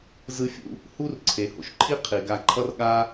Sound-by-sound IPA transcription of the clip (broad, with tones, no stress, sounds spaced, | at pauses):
z ɯ˥ fʲ ṵ˥ | h u˥ r ǀʰ e˩ h o̰˩ ʃ ǃʰ i˥ qʰ i˩ ɡ a˧ ǃʰ ʌ˥ r ɠ a˥